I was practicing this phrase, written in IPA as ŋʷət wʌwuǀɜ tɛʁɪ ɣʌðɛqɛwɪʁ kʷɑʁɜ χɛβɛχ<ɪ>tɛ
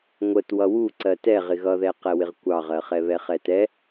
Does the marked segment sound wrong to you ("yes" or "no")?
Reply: yes